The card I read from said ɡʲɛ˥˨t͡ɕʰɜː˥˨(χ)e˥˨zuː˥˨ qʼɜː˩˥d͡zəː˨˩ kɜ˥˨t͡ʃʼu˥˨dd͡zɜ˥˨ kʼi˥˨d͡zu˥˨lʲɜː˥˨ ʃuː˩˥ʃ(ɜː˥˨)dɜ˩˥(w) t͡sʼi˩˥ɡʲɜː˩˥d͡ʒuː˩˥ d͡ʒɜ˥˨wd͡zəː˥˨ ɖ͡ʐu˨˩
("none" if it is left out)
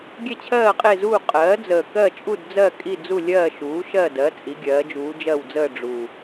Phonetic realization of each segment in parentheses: qʼ, ɜ˥˨, none

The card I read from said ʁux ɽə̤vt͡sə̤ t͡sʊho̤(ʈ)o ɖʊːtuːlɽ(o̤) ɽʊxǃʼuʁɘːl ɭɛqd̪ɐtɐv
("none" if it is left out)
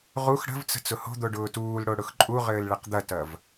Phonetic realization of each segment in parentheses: d̪, o

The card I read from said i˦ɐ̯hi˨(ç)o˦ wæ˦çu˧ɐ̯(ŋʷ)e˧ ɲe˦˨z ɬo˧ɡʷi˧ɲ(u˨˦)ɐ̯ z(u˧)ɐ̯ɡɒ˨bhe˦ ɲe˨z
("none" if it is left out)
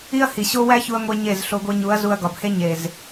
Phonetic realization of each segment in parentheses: ɕ, ŋʷ, u˨˦, u˧

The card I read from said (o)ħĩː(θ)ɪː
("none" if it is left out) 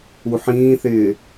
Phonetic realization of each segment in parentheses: u, θ

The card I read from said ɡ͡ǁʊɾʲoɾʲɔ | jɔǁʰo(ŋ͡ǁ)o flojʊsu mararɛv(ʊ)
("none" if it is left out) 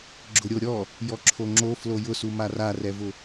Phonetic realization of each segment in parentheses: ŋ͡ǁ, ʊ

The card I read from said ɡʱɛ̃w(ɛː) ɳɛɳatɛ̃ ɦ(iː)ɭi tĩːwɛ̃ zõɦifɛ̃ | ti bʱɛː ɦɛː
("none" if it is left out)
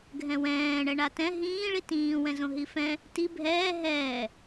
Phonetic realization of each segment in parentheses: ɛ̃ː, ĩː

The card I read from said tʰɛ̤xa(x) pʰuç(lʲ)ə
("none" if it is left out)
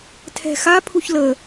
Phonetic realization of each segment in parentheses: none, l

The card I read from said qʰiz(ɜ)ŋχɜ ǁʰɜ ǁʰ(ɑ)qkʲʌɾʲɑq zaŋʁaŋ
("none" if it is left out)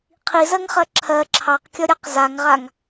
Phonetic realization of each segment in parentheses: ɜ, ɑ

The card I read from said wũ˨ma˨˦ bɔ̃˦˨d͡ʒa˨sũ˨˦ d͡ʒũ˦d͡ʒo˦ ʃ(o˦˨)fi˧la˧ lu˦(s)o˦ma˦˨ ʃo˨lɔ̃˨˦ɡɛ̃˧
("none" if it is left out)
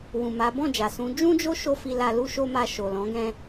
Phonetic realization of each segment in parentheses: o˦, ʃ

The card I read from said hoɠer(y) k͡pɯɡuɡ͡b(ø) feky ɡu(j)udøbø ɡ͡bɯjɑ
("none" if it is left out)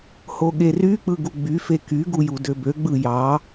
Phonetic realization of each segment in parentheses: y, y, j

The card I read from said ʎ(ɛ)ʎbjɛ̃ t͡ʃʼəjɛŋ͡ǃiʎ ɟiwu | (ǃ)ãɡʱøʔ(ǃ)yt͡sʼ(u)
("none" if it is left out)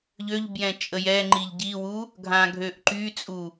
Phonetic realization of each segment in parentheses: ø, ɡʱ, ǃ, u

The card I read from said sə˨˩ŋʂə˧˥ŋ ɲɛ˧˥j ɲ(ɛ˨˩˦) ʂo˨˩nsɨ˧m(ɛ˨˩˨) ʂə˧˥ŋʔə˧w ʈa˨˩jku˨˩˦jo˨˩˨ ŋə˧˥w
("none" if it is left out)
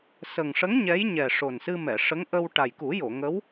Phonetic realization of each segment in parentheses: ɛ˨˩, ɛ˨˩˨

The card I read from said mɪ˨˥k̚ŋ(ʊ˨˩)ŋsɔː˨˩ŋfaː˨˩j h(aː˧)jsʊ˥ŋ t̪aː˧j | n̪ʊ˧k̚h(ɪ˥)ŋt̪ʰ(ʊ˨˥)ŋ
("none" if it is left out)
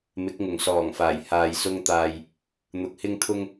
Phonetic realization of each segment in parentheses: ʊ˨˩, aː˧, ɪ˥, ʊ˥

